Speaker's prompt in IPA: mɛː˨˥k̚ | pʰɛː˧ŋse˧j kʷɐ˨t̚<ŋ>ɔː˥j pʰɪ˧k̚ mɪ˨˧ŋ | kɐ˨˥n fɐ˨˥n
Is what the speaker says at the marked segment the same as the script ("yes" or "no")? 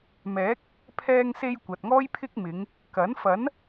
yes